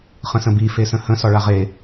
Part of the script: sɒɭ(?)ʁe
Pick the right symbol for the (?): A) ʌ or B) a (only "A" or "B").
B